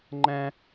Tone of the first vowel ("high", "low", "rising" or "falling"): high